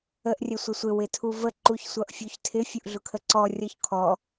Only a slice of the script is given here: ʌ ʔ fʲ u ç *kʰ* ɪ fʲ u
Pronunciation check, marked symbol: incorrect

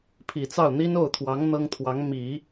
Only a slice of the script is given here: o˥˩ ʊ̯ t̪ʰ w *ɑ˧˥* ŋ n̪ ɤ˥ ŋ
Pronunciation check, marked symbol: correct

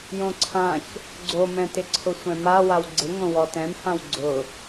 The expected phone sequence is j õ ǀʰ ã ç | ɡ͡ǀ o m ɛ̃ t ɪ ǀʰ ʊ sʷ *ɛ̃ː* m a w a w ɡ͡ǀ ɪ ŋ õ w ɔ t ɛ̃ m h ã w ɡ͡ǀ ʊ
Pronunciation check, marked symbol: incorrect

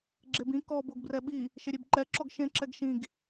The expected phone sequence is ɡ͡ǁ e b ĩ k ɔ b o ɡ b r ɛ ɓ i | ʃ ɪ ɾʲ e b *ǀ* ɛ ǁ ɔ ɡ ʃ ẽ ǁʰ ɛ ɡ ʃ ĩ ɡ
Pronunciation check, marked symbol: incorrect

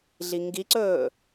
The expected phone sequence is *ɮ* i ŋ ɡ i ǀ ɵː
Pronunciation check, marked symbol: correct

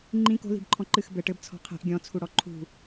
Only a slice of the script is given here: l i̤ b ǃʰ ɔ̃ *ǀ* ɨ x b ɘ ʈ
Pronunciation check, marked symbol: incorrect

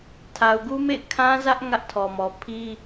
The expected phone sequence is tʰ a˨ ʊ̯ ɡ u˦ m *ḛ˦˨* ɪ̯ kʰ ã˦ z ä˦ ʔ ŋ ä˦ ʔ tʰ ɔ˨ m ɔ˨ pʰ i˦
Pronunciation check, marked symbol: correct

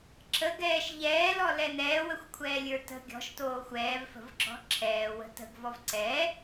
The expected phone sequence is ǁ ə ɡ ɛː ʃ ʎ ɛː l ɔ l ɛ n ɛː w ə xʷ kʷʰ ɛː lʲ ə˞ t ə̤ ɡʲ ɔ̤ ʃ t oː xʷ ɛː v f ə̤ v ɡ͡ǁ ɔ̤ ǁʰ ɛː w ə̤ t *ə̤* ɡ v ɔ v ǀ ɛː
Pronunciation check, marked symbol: correct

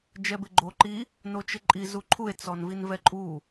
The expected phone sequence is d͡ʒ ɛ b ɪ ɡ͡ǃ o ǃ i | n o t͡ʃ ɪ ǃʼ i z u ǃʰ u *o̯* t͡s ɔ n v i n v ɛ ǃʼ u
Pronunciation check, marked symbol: incorrect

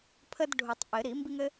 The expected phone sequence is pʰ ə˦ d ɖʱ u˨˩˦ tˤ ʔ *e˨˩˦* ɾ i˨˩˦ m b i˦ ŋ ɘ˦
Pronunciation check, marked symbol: incorrect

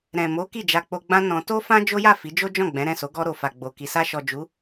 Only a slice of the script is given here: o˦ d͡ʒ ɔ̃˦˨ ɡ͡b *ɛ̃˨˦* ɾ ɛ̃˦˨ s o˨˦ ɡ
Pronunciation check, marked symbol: correct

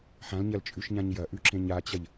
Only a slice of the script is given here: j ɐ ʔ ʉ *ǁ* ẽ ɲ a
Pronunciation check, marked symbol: correct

